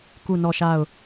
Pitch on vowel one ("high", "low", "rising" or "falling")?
falling